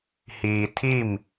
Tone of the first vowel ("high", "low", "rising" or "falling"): low